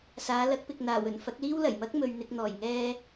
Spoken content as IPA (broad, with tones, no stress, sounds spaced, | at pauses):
s aː˨˧ l ɐ˨˥ k̚ p ɪ˨ k̚ n̪ aː˨˩ w ɵ˨˩ n f ɐ˨˥ k̚ l iː˥ w l ɐ˨˩ j m ɐ˥ k̚ m ɵ˨ ɥ n̪ ɪ˨ k̚ n̪ ɔː˨˩ j ŋ ɛː˧